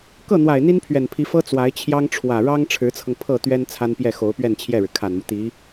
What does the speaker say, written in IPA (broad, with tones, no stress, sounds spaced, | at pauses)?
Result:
k ɤ˥˩ n̪ w a˨˩ ɪ̯ n̪ i˥ n pʰ ɥ ɛ˨˩ n pʰ i˧˥ f ɤ˥ t͡s w a˧˥ ɪ̯ t͡ɕʰ j ɑ˥ ŋ ʈ͡ʂʰ w ä˨˩ ɻ ɑ˥ ŋ ʈ͡ʂʰ ɻ̩˧˥ t͡sʰ ɤ˧ ŋ pʰ ɤ˥˩ t̪ ɥ ɛ˥ n t͡sʰ a˥ n p j ɛ˥˩ x o˧˥ ʊ̯ p ɥ ɛ˥˧ n t͡ɕʰ j ɛ˥˩ ɻ ɻ̩˩ kʰ a˨˩ n m u˦ t̪ i˧˥